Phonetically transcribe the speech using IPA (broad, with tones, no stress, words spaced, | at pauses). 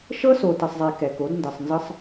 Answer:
ʃɤ˦ so˨tɯ˨sˤzˤe˨ kɛ˨ko˨˦dndɯ˨sˤnzɯ˦sˤ